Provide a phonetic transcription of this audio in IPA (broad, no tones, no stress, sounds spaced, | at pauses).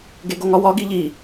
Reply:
ɡ e ɡ o ŋ ɒ w ɒ ɡ i ʎ i